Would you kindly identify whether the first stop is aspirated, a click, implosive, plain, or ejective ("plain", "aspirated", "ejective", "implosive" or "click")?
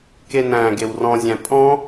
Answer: plain